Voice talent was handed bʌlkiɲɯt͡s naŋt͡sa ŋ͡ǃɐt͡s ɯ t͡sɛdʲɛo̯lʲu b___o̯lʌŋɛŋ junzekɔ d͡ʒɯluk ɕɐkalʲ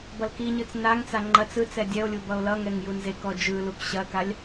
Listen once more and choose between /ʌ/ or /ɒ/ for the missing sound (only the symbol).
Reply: ʌ